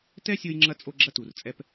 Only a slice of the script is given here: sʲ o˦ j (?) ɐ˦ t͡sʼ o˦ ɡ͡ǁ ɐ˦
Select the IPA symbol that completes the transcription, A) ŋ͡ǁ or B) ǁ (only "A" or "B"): A